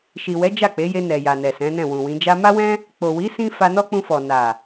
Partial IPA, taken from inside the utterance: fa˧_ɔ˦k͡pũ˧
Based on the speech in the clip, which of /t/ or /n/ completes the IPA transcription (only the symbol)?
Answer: n